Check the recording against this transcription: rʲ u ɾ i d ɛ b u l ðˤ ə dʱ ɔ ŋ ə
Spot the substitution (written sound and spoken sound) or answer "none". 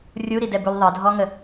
none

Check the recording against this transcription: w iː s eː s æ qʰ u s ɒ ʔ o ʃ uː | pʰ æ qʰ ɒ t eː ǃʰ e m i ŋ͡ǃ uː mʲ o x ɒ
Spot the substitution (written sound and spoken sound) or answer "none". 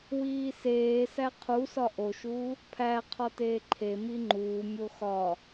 none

